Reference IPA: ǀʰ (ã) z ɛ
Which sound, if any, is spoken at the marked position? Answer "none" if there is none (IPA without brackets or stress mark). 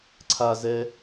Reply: a